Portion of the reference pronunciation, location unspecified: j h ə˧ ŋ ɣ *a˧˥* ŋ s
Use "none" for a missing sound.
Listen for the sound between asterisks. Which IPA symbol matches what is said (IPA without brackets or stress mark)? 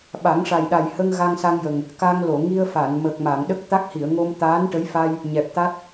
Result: a˧